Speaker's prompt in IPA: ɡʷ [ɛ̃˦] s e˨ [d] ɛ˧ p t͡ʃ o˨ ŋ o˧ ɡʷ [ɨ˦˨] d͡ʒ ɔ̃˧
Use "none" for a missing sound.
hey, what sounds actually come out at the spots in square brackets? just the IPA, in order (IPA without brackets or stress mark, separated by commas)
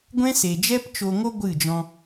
ɛ̃˦, d͡ʒ, ɨ˦˨